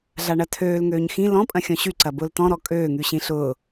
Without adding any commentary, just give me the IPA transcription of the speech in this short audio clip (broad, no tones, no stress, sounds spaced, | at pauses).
ɮ a ɳ ɐ tʰ øː l ŋ øː ɲ x ĩ l ɔ̃ pʼ ɐ̃ xʲ ɔ̃ ɕ y ǀ ɐ b ʊː l t ɔ̃ ɾ ɔ kʼ øː ŋ y ɕ ĩ ɬ ʊː